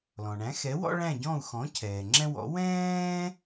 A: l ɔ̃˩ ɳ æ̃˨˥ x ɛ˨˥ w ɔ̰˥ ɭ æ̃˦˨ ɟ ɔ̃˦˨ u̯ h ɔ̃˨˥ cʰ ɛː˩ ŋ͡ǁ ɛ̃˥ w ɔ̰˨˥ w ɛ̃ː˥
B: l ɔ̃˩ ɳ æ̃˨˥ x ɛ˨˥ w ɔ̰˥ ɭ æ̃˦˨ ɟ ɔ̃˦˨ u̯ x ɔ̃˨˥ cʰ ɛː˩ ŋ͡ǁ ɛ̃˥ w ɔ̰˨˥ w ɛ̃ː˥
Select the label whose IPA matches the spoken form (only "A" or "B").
B